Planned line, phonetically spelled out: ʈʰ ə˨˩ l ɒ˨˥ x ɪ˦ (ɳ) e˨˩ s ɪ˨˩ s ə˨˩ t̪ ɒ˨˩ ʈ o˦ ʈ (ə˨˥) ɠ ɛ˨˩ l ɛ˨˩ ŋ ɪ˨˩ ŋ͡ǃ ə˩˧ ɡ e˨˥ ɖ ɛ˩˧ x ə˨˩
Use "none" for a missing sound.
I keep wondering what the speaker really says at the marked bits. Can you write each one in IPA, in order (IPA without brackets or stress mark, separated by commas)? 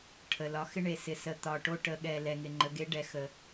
ɳ, ə˩˧